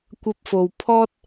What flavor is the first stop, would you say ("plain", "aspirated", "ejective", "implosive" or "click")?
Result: plain